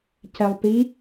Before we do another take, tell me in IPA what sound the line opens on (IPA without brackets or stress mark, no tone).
c